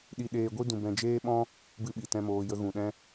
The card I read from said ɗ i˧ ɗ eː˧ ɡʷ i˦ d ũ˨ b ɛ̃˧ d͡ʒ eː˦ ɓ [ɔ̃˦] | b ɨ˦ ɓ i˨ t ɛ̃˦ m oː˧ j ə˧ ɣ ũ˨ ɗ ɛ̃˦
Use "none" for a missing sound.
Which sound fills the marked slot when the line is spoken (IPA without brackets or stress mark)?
ɔ̃˦